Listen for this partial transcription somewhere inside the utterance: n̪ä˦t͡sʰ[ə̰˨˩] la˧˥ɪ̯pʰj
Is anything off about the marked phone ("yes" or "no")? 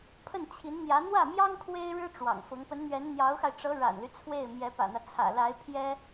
yes